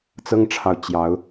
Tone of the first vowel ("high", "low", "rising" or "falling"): high